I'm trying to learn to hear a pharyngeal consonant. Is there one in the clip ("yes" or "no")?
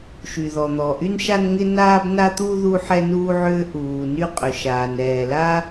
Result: yes